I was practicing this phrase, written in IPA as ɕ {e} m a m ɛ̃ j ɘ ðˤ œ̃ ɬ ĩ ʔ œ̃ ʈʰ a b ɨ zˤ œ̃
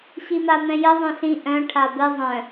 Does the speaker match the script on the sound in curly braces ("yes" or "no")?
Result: no